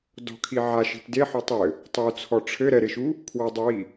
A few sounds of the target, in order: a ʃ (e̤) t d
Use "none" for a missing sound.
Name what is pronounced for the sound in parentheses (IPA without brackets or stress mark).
i̤